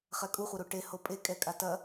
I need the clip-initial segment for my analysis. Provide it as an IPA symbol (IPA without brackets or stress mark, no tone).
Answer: χ